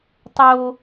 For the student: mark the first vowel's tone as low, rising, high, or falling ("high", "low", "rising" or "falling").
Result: high